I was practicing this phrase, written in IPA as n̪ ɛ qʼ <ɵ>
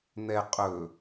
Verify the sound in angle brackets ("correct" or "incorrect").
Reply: correct